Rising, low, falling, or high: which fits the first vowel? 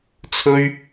high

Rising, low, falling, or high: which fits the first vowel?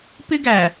high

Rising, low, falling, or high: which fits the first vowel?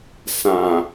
low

